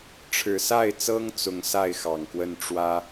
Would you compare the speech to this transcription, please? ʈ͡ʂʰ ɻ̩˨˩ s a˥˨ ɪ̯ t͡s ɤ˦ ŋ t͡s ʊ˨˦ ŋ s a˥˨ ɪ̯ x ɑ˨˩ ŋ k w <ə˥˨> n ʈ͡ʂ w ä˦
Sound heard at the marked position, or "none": ə˥˨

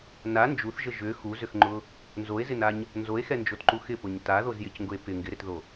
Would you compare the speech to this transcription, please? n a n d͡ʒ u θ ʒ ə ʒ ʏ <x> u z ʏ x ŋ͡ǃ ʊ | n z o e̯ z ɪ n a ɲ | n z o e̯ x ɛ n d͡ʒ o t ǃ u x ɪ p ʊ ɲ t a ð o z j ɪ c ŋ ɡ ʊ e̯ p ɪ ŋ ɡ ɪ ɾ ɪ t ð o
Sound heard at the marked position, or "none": x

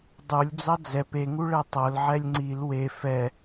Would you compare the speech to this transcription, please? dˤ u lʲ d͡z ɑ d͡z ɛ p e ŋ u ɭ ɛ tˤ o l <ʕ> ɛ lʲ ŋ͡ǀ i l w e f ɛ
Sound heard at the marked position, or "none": ʕ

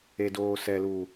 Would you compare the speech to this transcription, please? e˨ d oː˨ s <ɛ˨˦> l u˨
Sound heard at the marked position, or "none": ɛ˨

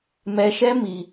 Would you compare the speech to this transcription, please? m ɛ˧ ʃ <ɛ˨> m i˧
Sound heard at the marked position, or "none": ɛ˦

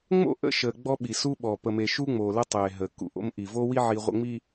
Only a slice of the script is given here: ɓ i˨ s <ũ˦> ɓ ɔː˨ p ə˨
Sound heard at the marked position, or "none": u˦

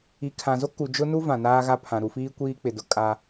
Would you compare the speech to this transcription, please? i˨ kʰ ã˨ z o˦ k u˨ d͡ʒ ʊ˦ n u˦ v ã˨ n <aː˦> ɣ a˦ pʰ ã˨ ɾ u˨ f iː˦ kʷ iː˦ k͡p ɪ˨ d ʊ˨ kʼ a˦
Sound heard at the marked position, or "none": aː˦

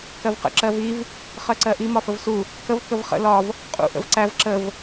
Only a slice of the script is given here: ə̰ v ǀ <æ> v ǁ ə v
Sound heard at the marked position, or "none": æ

